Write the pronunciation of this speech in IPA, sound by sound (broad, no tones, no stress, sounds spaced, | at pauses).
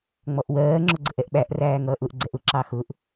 ŋ͡m ɔ ʔ w ɜː ŋ͡ǁ ʊ ɡ͡ǀ ə̤ ʔ ɛ ʔ ɓ æ ʔ r æː ŋ ʌː ʔ ʊ ʔ ɡ͡ǀ ɛ ʔ ʊ ǁ ɑ x ʊ ʔ